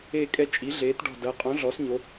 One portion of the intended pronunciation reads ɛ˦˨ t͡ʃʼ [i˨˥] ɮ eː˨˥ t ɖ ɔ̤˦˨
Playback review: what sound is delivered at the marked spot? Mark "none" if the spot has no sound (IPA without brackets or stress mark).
i˨˥